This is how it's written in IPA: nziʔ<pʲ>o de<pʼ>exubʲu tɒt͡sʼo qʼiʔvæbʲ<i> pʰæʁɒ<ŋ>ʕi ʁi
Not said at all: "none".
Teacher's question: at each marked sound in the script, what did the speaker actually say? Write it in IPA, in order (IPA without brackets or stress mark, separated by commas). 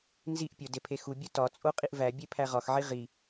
pʲ, pʰ, e, x